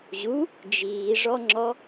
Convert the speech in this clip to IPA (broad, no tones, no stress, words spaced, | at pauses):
ʑu | d͡ʒiːʐɔŋ͡ǁɔ